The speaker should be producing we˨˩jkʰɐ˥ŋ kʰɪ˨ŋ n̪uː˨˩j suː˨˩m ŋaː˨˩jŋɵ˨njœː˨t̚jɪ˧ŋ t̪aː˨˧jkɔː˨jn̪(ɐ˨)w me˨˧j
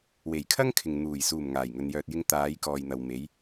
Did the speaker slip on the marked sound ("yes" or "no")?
no